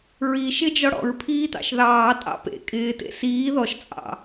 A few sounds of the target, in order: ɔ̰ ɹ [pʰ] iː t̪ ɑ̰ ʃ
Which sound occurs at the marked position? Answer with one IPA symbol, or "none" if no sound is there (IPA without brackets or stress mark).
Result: pʰ